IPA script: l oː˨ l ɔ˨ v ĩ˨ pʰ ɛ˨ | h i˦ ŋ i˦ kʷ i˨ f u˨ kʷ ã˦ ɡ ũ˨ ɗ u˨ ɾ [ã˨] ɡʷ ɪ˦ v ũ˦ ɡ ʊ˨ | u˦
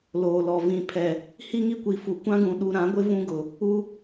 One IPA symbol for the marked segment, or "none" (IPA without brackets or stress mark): ã˨˦